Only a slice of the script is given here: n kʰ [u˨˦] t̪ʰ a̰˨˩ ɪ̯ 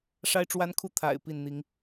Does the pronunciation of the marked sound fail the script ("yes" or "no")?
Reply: yes